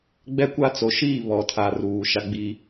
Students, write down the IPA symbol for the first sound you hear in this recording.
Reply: ɡ͡b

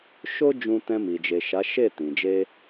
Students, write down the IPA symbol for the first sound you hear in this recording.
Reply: ʃ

